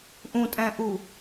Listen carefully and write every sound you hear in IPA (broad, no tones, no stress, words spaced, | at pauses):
ʔũtʼæ̃ʔu